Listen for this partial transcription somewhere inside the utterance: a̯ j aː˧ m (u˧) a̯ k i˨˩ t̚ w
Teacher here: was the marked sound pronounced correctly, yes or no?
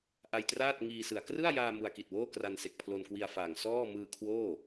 yes